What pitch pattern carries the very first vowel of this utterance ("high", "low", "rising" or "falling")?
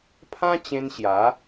high